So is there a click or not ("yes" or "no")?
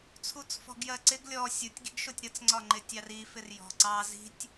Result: yes